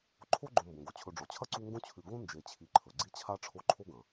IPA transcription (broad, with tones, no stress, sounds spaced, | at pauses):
ǃʰ o˦ ɡ͡ǃ õ˨ m b õ˩ ɡ o˩ t͡ɕʰ ɵ˨ ɖ͡ʐ o˩ t͡ɕʰ ɐ˦ ǀ u˦ ŋ ɡ õ˥ t͡ɕʰ ʉ˨ ɡ õ˥ n d͡ʒ e˨ t͡ɕʰ i˨ ǃʰ ɵ˩ ɡ͡ǀ i˦ t͡ɕʰ a˦ ʈ͡ʂʰ o˦ ǃʰ o˥ ɡ ɐ̃˩